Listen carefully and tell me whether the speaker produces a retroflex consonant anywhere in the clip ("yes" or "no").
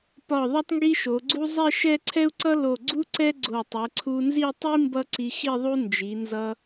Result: no